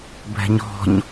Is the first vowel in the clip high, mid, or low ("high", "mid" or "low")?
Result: mid